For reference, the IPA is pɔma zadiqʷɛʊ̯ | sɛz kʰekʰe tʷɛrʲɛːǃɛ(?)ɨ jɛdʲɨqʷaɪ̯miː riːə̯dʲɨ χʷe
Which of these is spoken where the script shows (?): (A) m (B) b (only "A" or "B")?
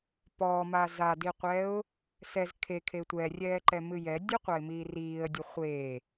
A